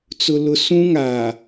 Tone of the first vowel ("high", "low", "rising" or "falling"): low